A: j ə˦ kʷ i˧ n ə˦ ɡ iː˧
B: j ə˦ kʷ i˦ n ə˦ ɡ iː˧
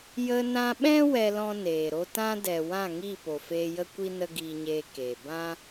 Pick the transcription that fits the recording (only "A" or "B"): B